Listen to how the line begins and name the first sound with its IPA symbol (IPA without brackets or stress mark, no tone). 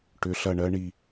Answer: ʈ